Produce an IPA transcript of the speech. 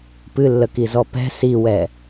pɨlːəkizɔ pɛ̤ siwɛ

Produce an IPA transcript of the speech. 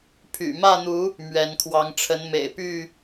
pʰy̰˨˩mä˥˨n̪u˨˦ | mɥɛ˨˦n kʰwɑ˨˦ŋʈ͡ʂʰə˨˦n mḛ˨˩ɪ̯py˥˨

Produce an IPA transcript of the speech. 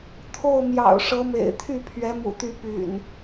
t̪ʰo˥˨ʊ̯ mjɑ̰˨˩ʊ̯ ʂɤ˨˦mḛ˨˩ɪ̯t̪ʰy˥˨ pʰɥɛ˨˦mṵ˨˩t̪y˨˦ py̰˨˩n

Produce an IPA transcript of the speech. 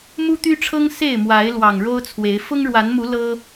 mu˦t̪y˦ʈ͡ʂʰɤ˦ŋ se˥˨ɪ̯mwa˨˦ɪ̯ lwɑ˨˩ŋɻo˦ʊ̯ t͡sʰwe˨˦ɪ̯ fʊ˦ŋɻwa˨˦nmu˨˦ lɤ˦

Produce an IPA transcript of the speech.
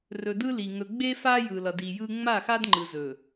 rɵ˨dɯ˦li˨ ŋɵ˨ ɡ͡be˦ fa˦ jɯ˨lʌ˨di˨jɯ˦ ŋ͡ma˦˨xa˦d ŋ͡ǃɯ˨zɵ˨

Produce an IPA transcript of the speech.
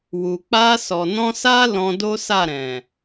wu˨ k͡pa˧sɔ˨nɔ̃˧sa˦ lɔ̃˧do˦sa˦˨ ɾɛ̃˨

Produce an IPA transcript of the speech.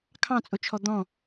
kʰɑ̃t͡sʼʊt͡ʃʰɔ d̪ɔ̃

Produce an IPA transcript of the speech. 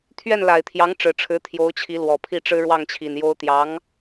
t̪ʰɥɛ˥˩nla˨˩ɪ̯t̪ʰjɑ˧˥ŋ ʈ͡ʂɻ̩˨˩ʈ͡ʂʰɻ̩˧˥ t̪ʰjo˧˥ʊ̯t͡ɕʰi˧˥ lwɔ˨˩pʰi˥˩ʈ͡ʂɻ̩˥ ɻwɑ˥˩ŋt͡ɕʰi˨˩njo˥ʊ̯ t̪jɑ˧˥ŋ

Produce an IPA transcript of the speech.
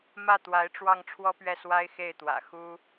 mä˥˩t̪wa˧˥ɪ̯ ʈ͡ʂwɑ˥˩ŋ ʈ͡ʂʰwɔ˥pɥɛ˥˩ swa˥ɪ̯ xe˥˩ɪ̯t̪wä̰˨˩ xu˥

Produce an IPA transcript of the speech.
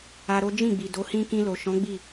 a˧ɾo˦ d͡ʒĩ˦˨ɡ͡bi˨ do˨˦hĩ˦ kĩ˧lo˨ʃɔ̃˨˦ ɡ͡bi˦˨

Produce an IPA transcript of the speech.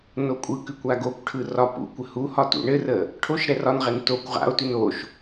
nokʷʼɯkʉkʷ aɡokʷʈʰɯ rɒ pṵkʷə huhɒ tṵɳɘrə | ʈʰoʃ ɾɛrɒnʁɛn tokʷ ʁa̰o̯tʉn oʃ

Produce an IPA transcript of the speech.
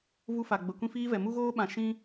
vu˧fa˨ ɡ͡bə˨kʷĩ˧fiː˧vɛ˨ mu˧ɣoː˧ɓã˨ ʃĩ˦

